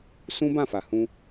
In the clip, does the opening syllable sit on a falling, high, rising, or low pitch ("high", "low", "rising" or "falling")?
high